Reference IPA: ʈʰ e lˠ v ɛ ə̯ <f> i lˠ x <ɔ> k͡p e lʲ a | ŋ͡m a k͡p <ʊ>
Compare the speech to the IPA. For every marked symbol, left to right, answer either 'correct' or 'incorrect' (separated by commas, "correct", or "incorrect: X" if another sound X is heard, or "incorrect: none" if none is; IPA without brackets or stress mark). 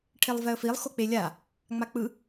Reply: correct, incorrect: o, incorrect: ɯ